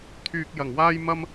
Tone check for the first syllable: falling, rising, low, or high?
low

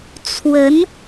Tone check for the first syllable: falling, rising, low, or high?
rising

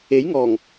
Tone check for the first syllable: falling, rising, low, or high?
rising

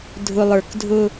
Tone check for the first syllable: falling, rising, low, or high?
low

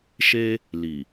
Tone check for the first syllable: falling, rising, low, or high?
high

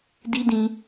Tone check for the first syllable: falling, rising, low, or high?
high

